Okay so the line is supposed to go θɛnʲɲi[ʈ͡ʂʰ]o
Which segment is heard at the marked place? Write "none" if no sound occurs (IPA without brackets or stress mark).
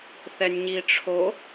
ʈ͡ʂʰ